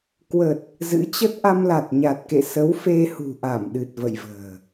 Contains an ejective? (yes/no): no